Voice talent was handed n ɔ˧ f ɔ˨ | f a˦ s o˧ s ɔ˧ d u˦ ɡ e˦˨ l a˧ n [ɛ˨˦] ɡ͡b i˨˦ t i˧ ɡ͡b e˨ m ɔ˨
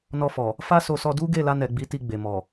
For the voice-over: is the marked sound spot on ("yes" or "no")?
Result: no